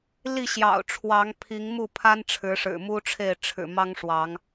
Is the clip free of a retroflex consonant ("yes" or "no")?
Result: no